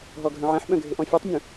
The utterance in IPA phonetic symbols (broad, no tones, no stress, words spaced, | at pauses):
ɦɔɡʱœ̃ʕɛ̃ħɓœ̃ ɡʱɪʔɔ̃fʲutˤmʲũ